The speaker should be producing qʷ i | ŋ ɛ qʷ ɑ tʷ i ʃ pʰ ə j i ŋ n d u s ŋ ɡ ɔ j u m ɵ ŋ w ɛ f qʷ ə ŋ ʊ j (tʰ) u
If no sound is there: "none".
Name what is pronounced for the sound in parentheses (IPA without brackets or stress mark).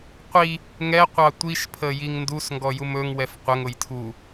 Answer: tʰ